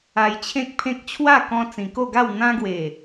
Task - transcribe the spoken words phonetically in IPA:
a˧ j t͡ɕʰ ẽ˦ k̚ pʰ ẽ˦ k̚ t͡ɕʰ w a˥˧ k ɔ̃˧ t͡s ĩ˨˩ k o˥˧ ɡ a˥˧ w n̪ ã˧ ɡ w e˨˩

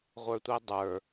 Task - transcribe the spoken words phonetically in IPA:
ʁʷ ə˞ tʷ ɛ dˤ ə˞

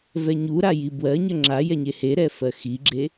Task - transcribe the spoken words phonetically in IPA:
v ɛ ɲ u ɾ a j i b w ɜ ɲ ə ŋ͡ǁ a j ɛ ɲ e h e ɾ ɛ f ɜ x i ɡ͡ǁ e

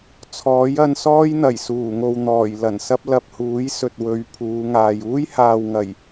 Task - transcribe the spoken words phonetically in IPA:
t͡sʰ ɔː˨˥ j ɐ˧ n s ɔː˥ j n̪ ɐ˨˩ j s uː˨˩ ŋ o˨ w n̪ ɔː˨˩ j l ɐ˨˩ n s ɐ˥ p̚ l ɐ˨ p̚ h uː˨˥ j s ɵ˨ t̚ w ɵ˨˧ ɥ pʰ uː˨˧ ŋ aː˨ j uː˥ j h aː˨ w ŋ ɐ˨˩ j

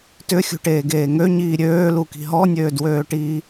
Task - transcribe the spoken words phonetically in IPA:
t ʏ xʲ ṳ ʈ eː ɡ eː ŋ ø ɲ iː ɾʲ øː l u k i̤ ɦ ɔ nʲ øː d w øː ʈ iː

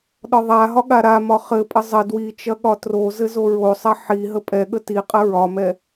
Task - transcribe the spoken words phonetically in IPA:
ɗ ɒ ðˤ a ɦ ɒ ɠ a ɾ a m ɒ χ ɘ pʼ ə zˤ ə d w i t͡ʃ ɐ ɠ ɒ t r o z ɘ z o ɹ o sˤ ɐ ħ i ɦ ə pʼ ɛ ɠ ə t i qʼ ə ɹ ɒ m ɛ

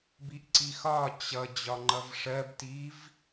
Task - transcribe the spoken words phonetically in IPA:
b i ʔ ǀ i x ɒ t͡ɕ ʌ d͡ʑ ɒ ŋ͡ǃ ʌ v ʂ ɜ b t i v

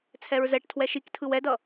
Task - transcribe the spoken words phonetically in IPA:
t͡sʰ ɛ ɹ z ɛ ʈ tʰ w ɛ ʃ i k tʰ ɯ w ɛ d ʌ

